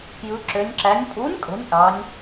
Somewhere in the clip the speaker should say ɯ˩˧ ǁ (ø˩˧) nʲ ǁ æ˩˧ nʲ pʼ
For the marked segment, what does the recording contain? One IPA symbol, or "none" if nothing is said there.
ø˩˧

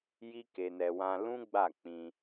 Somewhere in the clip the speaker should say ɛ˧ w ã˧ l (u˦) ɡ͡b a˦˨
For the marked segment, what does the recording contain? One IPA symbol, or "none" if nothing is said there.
ũ˦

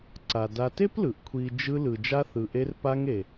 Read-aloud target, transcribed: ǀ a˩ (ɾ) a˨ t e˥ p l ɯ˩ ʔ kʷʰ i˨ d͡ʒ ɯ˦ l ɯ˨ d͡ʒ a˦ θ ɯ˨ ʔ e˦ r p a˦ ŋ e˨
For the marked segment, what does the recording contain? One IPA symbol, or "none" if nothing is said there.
d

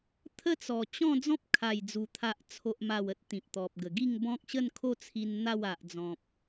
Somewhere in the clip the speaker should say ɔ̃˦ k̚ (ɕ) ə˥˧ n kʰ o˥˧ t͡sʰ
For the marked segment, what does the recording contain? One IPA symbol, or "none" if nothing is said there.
ɕ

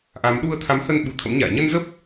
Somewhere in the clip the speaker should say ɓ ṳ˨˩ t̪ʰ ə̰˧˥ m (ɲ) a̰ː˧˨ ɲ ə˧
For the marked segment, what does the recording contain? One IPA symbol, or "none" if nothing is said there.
ɲ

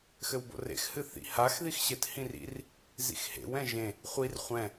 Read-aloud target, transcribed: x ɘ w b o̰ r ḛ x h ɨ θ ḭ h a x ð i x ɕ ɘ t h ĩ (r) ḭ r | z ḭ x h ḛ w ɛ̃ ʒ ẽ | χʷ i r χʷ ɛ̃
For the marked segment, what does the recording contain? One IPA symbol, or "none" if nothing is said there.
r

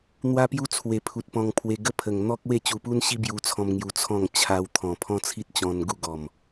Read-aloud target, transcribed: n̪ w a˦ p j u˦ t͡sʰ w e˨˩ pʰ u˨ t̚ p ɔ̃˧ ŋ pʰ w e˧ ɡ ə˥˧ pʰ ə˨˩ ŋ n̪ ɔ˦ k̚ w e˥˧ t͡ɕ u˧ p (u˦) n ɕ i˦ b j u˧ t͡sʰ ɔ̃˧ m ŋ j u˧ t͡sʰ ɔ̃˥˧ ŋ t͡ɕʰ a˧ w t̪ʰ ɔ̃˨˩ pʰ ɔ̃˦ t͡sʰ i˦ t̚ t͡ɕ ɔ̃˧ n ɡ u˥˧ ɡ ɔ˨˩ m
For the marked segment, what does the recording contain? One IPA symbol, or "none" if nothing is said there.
u˦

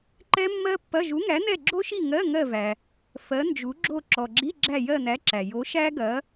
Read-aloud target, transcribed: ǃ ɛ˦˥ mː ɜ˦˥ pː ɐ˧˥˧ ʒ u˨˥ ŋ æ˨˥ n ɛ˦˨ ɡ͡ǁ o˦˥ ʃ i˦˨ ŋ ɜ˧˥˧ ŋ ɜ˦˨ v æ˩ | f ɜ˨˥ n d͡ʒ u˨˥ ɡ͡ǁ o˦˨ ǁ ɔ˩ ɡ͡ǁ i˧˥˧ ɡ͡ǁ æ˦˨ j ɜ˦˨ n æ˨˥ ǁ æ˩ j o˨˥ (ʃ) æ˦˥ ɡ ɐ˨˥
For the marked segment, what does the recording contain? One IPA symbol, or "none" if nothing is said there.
ʃ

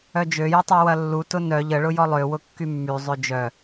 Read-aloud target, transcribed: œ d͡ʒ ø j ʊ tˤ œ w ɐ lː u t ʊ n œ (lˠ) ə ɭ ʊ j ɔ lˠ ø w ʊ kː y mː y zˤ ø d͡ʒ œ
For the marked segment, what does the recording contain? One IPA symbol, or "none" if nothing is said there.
ʎ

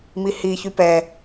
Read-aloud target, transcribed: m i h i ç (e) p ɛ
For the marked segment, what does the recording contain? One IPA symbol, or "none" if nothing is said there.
y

